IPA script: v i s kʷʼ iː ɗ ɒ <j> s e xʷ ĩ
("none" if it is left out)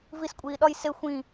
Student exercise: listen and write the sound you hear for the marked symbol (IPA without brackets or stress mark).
j